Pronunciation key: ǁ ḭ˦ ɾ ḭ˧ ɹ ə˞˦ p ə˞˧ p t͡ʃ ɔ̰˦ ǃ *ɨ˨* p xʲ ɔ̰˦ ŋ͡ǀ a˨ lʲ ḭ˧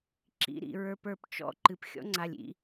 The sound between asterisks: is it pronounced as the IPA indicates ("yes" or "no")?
yes